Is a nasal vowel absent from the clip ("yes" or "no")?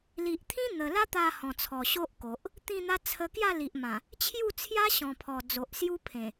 no